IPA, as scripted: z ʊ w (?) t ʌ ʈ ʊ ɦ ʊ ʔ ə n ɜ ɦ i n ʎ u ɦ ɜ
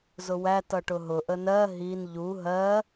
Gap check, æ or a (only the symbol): æ